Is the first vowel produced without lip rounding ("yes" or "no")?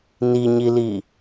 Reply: yes